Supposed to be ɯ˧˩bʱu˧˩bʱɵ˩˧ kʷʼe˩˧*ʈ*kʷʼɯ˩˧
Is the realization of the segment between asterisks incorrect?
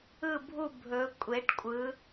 no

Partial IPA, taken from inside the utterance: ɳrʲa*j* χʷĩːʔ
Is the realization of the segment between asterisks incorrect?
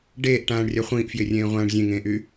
yes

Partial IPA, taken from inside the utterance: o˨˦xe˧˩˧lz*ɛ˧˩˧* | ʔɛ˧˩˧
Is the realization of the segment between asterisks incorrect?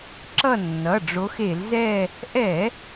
yes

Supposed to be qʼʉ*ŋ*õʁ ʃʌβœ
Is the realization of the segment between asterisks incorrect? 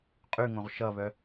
no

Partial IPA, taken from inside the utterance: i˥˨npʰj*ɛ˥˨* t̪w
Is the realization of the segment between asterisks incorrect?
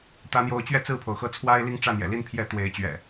yes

